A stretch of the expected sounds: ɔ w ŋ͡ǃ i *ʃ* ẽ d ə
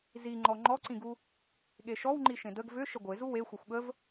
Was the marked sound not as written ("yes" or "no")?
no